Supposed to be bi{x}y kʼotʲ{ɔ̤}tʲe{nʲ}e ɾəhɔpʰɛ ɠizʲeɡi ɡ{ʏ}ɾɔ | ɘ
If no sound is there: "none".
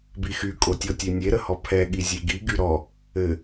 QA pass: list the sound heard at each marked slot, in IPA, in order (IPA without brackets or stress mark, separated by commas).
x, ɔ, nʲ, y